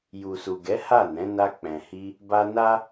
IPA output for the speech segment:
ju˨su˨ɡɛ˨˦ ha˦˨nɛ̃˨˦na˧ k͡pɛ̃˨hi˧ | ba˧na˦

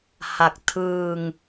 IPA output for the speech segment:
ha˨˩k̚ tʰɯː˧ŋ

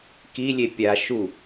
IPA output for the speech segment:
kilʲe pʲa ʃu

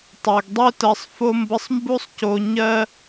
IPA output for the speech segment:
tˤɜ˨ɡdˤø˦ tɜ˧sˤfo˦mbə˦sˤ mbu˦sˤco˧ɲɜ˦

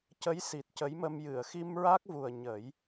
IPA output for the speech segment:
cə˧˥jsi˨˩t̚ cə˧˥jmə˧m jɨ˨˩˨ə̯ xi˧mɹa˦˥k̚vu˨˩ə̯ ɲə˨˩˦j

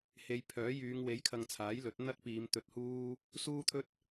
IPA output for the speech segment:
he˨˧jpʰœː˨˥jyː˨˧ŋ we˨˥jkʰɐ˨ŋ t͡sʰaː˨˥jlɵ˨˥t̚n̪ɐ˥t̚piː˨˧m t̪ɵ˧t̚huː˥ | suː˥t̪ʰɵ˥t̚

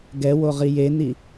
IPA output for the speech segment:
ɡɛwoʁi jeni

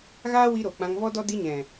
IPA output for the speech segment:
ɣaː˦wi˧ɾo˨ k͡pã˧ŋvɔ˦dɔ˦ di˧ɲɛ̃˨

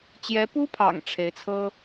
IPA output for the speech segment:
t͡ɕjɛ˧˥pu˥pʰɑ̰˨˩ŋ ʈ͡ʂʰe˧˥ɪ̯t͡sʰɤ˥

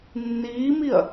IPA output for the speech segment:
nːiːmiɐ̯

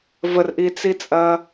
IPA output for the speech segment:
vərʔit͡sit͡sʼɐː

